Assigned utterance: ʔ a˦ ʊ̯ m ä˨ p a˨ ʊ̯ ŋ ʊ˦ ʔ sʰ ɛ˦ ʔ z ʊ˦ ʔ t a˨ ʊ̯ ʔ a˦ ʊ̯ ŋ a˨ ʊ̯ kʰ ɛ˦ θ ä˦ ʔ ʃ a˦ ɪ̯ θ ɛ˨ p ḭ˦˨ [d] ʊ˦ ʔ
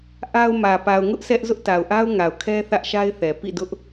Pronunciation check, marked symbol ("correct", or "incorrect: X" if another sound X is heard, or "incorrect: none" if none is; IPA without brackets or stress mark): correct